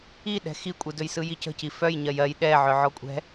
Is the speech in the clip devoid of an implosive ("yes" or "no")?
no